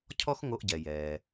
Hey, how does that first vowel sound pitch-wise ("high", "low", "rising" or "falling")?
high